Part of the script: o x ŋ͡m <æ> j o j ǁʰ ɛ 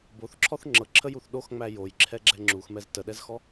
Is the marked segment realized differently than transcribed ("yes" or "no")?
no